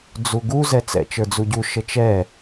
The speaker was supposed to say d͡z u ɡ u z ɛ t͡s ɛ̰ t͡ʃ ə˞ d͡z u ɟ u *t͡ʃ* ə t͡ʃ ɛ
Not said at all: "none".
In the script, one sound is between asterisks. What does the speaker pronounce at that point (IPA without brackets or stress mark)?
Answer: ʃ